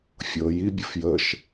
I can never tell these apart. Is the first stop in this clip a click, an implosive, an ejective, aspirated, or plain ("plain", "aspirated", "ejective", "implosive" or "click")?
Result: plain